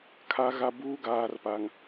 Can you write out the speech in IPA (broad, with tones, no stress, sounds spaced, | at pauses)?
kʰ a˨ ɣ a˨ b uː˦ ɡ aː˨ r p a˨ ŋ